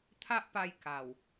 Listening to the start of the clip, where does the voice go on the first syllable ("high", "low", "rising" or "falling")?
high